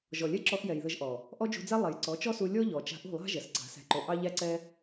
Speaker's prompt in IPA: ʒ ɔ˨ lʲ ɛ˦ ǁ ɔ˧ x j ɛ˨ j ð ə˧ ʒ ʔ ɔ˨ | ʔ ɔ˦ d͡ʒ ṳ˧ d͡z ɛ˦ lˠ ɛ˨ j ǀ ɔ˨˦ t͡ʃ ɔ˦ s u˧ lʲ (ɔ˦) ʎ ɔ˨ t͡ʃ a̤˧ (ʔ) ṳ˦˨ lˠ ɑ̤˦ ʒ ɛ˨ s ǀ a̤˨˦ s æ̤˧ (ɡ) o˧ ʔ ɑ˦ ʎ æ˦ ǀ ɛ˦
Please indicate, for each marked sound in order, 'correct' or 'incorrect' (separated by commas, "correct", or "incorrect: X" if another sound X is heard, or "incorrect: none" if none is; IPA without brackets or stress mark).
correct, correct, incorrect: ǃ